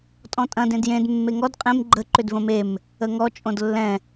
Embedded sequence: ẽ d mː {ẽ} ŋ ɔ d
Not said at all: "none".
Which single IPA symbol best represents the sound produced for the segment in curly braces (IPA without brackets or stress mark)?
e